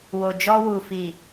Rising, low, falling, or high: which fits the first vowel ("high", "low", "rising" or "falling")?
low